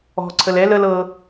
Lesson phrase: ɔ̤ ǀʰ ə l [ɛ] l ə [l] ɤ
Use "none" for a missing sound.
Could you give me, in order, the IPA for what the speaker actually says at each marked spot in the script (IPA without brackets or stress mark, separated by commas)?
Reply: ɛ, l